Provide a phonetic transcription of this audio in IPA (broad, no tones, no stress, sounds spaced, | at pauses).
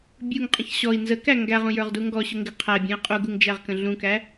bʲ u ŋ qʼ ə̃ ç ɕ ɔ i̯ n z ə k æ ŋ ɡ æ ʁ ũ j ə˞ ʁ d u ŋ ɡ ɔ ɕ ʊ ŋ ɡ ɪ qʰ æ bʲ ũ i̯ qʼ u ɡ u ŋ d͡ʒ æ ʁ k ə̃ ɮ ũ k æ